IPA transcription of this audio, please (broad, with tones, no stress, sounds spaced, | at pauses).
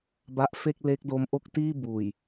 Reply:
b a˦˥ ʔ f e˥˩ k̚ l e˦˥ k̚ d o˦˥ m ʔ o˥˩ k̚ t iː˥˩ b uː˨˩ j